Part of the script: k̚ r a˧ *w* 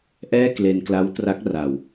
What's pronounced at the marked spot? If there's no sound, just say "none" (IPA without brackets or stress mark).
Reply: w